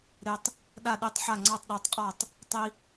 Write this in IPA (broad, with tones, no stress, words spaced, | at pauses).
ɾe˦tˤ | ɗa˥˨ɗe˦tˤħa˥˨ ŋ͡ǀɑ˥˨tˤɗa˦tˤ qʼɔ˥˨tˤ | tˤi˦